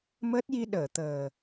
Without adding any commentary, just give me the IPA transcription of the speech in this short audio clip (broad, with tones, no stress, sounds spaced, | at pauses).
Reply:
m əː˦˥ t̚ j i˧ ɗ əː˨˩˨ t̪ əː˨˩